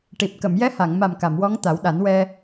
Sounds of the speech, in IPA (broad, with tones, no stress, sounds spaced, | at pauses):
ʈ i˨˩ p̚ k ə˨˩˨ m j ɛ˧˥ h a˨˩˨ ŋ m a˨˩ m k a˨˩˨ m w ɔ˧˥ ŋ t̪ a˨˩˦ w ɗ a˨˩˦ n w ɛ˧